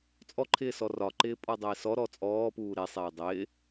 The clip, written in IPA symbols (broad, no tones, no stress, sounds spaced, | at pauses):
t͡sʼ ɔ ǃʰ ɪː s ɔ r ɒ ǃ ɪː pʼ ɔ dˤ ɪː s ɔ ɾ ɔ t͡sʼ ɔː p uː ɾ e sˤ eː dˤ ɪː